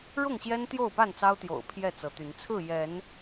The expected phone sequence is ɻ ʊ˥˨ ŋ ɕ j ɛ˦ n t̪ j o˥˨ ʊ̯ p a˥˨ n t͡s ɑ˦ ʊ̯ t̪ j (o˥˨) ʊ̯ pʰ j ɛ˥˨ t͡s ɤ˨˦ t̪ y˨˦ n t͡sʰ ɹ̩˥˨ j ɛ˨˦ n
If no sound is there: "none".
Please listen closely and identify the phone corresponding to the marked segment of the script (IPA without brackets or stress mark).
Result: o̰˨˩